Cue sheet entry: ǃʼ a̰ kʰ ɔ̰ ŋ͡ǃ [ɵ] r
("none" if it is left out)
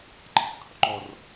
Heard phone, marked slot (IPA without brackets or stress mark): ɔ